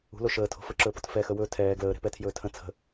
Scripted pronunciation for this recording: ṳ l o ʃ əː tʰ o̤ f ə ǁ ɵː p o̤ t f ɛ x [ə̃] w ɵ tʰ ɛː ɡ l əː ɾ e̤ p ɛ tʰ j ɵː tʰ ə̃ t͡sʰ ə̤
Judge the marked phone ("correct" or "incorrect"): incorrect